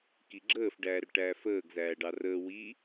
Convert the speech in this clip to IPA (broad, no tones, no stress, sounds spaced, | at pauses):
k i ɡ͡ǁ əː f ɖ æː r ʈ æː f əː ɡ z æː ɖ ɑ r əː w i